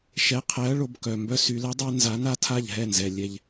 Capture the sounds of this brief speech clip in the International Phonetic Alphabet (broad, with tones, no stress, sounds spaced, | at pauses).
ʃ ɛ˨˥ qʰ ɛ˨˥ ɐ̯ ɭ o˩˧ b k œ˩ m b œ˦ s y˩˧ l ɛ˨˥ dˤ a˦ n z a˨˥ n a˦ tʰ a˥˩ ʎ ɦ ɛ˥˩ n z ɛ˩ lʲ ɛ˧˩ ʎ